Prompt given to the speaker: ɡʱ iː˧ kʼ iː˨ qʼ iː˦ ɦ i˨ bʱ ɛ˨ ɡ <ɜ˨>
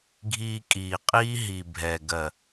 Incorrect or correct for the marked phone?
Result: correct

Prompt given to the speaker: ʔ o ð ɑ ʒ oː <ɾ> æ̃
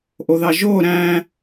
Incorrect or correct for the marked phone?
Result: correct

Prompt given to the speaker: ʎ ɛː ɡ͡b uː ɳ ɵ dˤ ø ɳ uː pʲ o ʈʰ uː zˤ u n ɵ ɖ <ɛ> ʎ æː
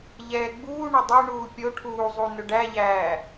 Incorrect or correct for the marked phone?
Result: incorrect: æ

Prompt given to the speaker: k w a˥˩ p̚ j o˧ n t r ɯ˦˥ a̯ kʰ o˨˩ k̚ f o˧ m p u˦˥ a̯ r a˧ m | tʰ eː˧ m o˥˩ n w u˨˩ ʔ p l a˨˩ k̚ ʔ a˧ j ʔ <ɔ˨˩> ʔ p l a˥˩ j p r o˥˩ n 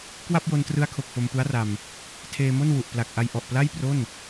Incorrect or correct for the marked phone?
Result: correct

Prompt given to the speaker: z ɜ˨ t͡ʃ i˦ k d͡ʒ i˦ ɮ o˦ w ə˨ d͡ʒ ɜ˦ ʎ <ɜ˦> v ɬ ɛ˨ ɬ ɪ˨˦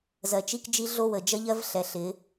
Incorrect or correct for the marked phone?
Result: correct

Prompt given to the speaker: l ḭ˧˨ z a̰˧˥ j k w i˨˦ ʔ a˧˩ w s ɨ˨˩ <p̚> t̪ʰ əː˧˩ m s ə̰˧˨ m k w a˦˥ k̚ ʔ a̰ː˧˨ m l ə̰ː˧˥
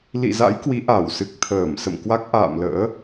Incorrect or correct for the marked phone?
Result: incorrect: k̚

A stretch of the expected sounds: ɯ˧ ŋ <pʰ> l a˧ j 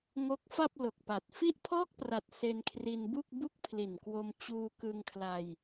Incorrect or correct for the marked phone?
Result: incorrect: kʰ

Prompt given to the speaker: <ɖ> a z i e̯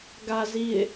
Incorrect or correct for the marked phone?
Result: incorrect: ɡ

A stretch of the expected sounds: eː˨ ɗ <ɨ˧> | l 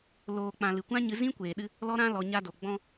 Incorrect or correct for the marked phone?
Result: correct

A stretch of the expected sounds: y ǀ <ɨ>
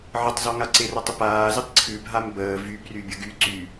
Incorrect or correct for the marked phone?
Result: incorrect: y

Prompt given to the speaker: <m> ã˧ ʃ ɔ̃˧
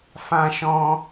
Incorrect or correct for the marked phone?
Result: incorrect: f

